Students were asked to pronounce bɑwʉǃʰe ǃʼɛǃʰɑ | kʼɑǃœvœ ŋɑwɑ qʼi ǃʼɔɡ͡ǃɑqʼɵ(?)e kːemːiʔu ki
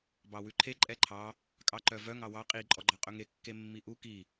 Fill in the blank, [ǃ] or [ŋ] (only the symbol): ŋ